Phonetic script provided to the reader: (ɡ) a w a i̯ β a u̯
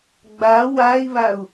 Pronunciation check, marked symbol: incorrect: ɡ͡b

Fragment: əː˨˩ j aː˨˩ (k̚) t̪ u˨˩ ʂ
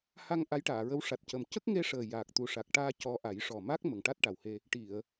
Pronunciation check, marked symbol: correct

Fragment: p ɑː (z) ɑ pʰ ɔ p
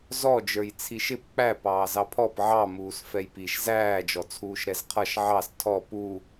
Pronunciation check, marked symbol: correct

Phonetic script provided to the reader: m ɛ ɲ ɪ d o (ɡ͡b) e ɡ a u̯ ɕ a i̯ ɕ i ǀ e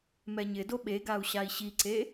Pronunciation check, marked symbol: incorrect: ɓ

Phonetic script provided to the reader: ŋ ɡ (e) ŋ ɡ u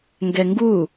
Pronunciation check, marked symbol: incorrect: ɛ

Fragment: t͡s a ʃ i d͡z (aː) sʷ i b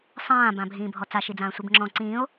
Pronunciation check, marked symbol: incorrect: ãː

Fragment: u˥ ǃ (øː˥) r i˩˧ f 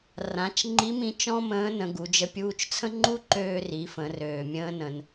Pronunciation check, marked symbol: incorrect: øː˧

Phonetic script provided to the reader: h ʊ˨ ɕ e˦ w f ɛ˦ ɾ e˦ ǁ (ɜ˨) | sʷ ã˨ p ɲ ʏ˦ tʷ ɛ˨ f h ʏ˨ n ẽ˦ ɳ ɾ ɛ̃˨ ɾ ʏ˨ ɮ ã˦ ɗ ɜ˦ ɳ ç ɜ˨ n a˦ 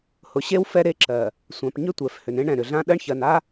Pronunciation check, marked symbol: correct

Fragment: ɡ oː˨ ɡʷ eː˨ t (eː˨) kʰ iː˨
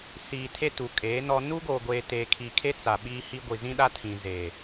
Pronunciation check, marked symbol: correct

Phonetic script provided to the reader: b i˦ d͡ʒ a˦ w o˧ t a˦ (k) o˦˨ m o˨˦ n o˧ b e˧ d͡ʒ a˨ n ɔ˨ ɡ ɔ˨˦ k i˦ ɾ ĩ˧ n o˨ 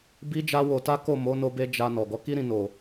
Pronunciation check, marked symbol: correct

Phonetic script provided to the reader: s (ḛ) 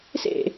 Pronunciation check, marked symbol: correct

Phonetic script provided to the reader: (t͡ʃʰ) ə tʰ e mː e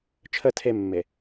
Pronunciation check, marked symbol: correct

